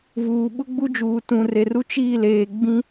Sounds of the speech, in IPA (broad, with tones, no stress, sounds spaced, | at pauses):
v uː˨ ɓ ʊ˦ ɡ͡b u˦ d͡ʒ uː˨ t ũ˨ r e˨ r u˦ t͡ʃ iː˦˨ l eː˨ ɡ͡b ĩ˦